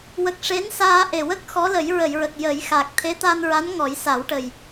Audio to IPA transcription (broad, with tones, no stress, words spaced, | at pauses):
wə˨˩k̚ ʂe˧˥nsaː˧ ʔe˨˩wə˦˥k̚ xɔ˧˥lə˨˩˦jɹə˨˩˨jɹə˨˩k̚ jə˨˩˦jxa˨˩k̚ t̪ʰe˧˥t̪a˧nɹa˧˥n ŋɔ˨˩˦jsa˨˩˦wʈə˨˩j